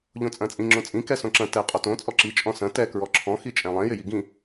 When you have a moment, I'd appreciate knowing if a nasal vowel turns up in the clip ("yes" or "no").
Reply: yes